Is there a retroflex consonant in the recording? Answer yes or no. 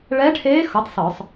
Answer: yes